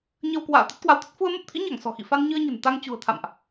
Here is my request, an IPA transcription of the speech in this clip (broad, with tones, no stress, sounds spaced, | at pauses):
ɲ ə˧ w k w a̰ː˧˨ t̪ ə˦˥ t̚ k w a˨˦ w t̪ ə˦˥ t̚ f u˧ ə̯ m ə˦˥ p̚ t̪ʰ ḭ˧˥ ɲ a˧˩ ŋ s ɔ̤˨˩ x ḭ˧˨ f a˧ n ɲ ɨ˧ ə̯ ɲ ə̤˨˩ n t̪ a˧ ŋ t͡ɕ ṳ˨˩ ə̯ t̪ʰ a̰˧˨ m ʔ